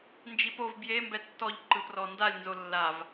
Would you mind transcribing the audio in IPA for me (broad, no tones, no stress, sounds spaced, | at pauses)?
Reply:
n d͡ʒ i p o v b j e m b ɛ tː ɔ ʎ ǃ ɯ p r ɔ n d a lʲ n z o lː a v